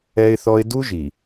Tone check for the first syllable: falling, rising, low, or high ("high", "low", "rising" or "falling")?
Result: high